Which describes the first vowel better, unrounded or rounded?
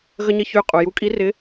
unrounded